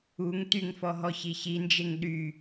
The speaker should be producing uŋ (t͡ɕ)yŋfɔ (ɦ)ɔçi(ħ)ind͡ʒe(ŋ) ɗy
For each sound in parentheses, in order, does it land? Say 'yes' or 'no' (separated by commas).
no, yes, no, yes